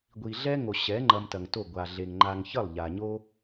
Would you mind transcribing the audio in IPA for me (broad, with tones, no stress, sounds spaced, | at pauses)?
ɡʷ i˨ ɮ ɛ˦ ŋ o˨ ɕ ɛ˨˦ ŋ͡ǃ ɐ˧ m t ɐ˨ ŋ t o˦˨ ɡʷ a˨ ɮ e˨ ŋ ŋ͡ǃ a˨ ŋ ç ə˦˨ lˠ ʎ a˨ ɲ o˦